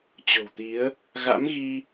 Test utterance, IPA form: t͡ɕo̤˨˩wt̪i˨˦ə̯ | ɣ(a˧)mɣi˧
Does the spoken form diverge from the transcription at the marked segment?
yes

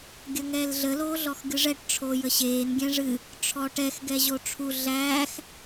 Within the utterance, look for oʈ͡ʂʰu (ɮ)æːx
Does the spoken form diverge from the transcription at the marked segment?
no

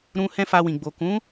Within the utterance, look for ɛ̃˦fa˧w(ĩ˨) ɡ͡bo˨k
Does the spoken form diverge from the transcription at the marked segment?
no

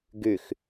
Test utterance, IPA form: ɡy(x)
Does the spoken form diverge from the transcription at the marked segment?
no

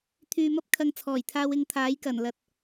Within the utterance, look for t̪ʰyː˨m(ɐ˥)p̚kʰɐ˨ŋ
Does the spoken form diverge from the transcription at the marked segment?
no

